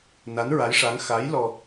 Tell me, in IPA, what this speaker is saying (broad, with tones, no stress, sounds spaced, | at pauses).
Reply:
n a˧˥ n ɹ a˧˥ j ʂ a˧˥ ŋ x a˧˥ j l ɔ˧